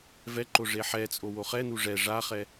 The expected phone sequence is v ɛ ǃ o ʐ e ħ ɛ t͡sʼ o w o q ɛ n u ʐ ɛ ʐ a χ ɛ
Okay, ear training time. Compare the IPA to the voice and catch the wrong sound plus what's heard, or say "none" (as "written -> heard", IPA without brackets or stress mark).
q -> χ